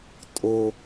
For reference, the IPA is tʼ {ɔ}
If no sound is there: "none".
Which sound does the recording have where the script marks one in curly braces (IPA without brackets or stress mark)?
o